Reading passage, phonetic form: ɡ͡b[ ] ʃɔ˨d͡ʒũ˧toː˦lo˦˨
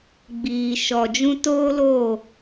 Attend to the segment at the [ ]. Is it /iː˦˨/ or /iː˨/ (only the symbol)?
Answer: iː˨